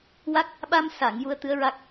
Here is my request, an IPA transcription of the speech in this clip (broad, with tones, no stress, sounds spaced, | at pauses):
w a˦˥ k̚ | ɓ a˧ m s a˨˩˨ ŋ j u˧ ə̯ t̪ ɨ˧˥ ə̯ ɹ a˦˥ k̚